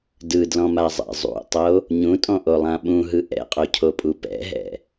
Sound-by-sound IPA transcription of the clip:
dɯdlɔ̃mazˤɛ̰ zˤṵtˤo | ɲũtʼɔ̃ʔolˠã ɓũɦɯ ʔɛ̰qʼocʰopʼu pɛ̰ɦɛ̰

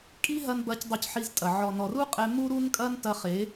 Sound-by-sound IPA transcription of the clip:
kʼi˦ɦɐ˧nbɐ˨˦c dˤu˧cħi˧ztʼɐ˨ ʕɔ˨nɔ˨ru˦qʼɛ˧ mu˦ɾu˦nkʼɐ˦n tɐ˧χe˨˦

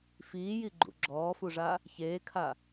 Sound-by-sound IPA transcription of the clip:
fiːjiɡ͡ǃṵ ɡ͡ǁɔːfuʐa | çeːkʰa

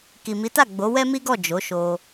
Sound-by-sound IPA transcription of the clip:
ki˨mi˨˦ta˦˨ ɡ͡bo˨˦wɛ˦mi˦ɡɔ˦˨ d͡ʒo˨˦ʃo˧

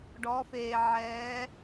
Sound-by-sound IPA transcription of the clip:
ɖɔ˩˧feː˩ʕɛː˩˧

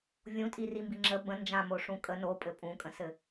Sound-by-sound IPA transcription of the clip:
vʲũtʼirimbi ŋ͡ǁə bə̃ nd͡ʒãmoʂũ kʼə nopʼɘ pʼũkʼə̃sɘ

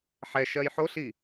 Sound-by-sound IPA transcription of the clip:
ħɛʃɜj ħoɬi

